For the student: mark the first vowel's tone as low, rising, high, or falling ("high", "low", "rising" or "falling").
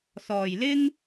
low